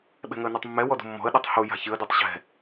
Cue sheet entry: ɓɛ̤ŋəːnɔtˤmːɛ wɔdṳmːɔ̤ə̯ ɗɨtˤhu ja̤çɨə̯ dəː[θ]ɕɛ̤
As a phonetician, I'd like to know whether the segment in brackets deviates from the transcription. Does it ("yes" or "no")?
yes